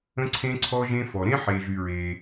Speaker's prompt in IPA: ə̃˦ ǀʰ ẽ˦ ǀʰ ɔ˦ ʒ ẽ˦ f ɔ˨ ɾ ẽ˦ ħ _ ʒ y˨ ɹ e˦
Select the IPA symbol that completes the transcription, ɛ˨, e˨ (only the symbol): e˨